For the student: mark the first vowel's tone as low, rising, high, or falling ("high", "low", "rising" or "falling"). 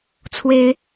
high